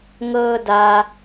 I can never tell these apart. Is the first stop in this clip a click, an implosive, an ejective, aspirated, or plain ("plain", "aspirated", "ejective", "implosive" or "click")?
plain